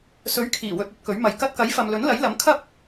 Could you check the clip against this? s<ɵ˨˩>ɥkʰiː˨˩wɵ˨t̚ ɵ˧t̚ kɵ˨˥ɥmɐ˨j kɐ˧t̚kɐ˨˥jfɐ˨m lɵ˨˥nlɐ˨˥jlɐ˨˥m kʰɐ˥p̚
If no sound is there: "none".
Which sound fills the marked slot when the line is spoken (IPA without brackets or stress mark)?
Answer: ɵ˨˥